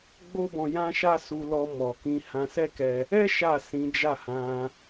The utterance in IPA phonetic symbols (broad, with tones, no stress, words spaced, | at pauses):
ɡ͡bo˦bɔ̃˧ jã˦ʃa˦ su˧lɔ˧ mɔ˨kĩ˧ hã˧sɛ˦kɛ˧ | ɛ˦ ʃa˦˨ sĩ˨˦d͡ʒa˦˨hã˧